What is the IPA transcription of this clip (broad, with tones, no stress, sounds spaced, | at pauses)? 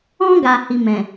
ɔ̃˦ ɡ a˧ h i˧ m ɛ̃˨